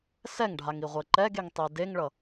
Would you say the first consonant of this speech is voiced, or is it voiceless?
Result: voiceless